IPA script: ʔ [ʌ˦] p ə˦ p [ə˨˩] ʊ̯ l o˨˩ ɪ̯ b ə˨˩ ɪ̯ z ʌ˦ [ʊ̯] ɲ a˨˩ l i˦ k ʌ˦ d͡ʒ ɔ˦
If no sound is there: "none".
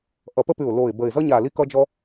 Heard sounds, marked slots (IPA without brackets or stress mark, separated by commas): ʌ˨˩, ʉ˨˩, none